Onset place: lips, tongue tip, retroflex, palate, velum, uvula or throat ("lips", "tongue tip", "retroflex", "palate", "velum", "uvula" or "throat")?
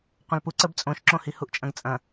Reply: uvula